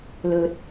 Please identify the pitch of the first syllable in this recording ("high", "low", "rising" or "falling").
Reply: low